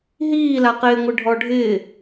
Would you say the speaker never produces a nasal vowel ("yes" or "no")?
yes